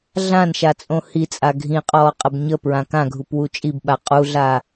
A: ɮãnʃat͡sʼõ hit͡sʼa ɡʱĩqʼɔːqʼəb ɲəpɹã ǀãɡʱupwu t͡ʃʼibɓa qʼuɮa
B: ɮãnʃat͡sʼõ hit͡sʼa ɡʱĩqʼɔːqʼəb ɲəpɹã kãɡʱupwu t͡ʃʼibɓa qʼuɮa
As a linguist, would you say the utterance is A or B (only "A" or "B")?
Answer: B